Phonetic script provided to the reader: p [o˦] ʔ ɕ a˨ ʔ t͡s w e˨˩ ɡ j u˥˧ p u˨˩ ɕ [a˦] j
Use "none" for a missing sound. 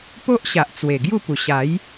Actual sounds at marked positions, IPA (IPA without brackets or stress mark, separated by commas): o˦, a˨˦